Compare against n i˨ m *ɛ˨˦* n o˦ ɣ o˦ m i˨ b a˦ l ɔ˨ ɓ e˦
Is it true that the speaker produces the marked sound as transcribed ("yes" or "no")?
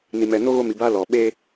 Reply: no